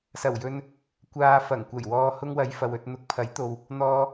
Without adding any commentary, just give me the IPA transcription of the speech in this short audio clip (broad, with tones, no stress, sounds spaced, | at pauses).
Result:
s ɐ˨˩ w j ɵ˨ n | kʷ aː˨ f ɐ˨˩ ŋ kʷ ɐ˨˩ j w ɔː˨ h ʊ˧ ŋ w ɐ˨˧ j f ɐ˨ w ɵ˨ t̚ n̪ ʊ˨˥ k̚ pʰ ɐ˨˥ j t̪ o˨ w | n̪ ɔː˨